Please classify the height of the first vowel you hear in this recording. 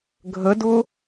mid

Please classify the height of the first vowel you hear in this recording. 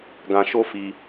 low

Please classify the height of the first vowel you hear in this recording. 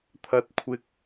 low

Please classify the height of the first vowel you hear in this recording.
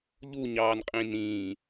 high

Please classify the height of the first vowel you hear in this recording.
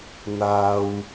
low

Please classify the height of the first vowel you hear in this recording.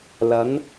low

